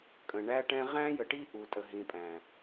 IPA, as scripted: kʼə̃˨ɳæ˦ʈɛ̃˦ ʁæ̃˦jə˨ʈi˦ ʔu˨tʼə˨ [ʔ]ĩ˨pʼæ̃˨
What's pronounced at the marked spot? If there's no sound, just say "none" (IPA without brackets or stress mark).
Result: ɦ